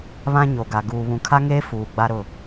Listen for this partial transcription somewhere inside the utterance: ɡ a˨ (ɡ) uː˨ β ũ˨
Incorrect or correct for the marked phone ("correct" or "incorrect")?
correct